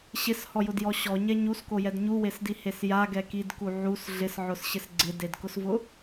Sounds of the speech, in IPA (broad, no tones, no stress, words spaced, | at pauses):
ɕɪshɔjʊdjɔ ɕɔɲɛ ɲuskojɛd ɲuwesdihes jaɡɛ kidku ʕus ɮɪsʕʊsɕɪs ɡ͡ǀɪdedkʊsvʊ